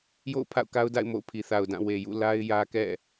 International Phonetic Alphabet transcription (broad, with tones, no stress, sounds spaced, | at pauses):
j o̰˦˨ ʊ̯ pʰ a̰˦˨ ʊ̯ k a˦ ʊ̯ d a̰˦˨ ɪ̯ m o̰˦˨ ʊ̯ pʰ i˨ θ a˨ ʊ̯ d ã˦˨ w e˨ j ṵ˦˨ l a˦ ɪ̯ j ä˦ k ɛ̰˦˨